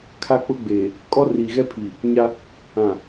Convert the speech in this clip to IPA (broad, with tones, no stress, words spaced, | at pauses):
kʰa˦k͡pʊ˦ɡ͡beː˨ | kʼɔ˦riː˨ɣɛ˦pʰiː˨ | ɲa˦ | ã˨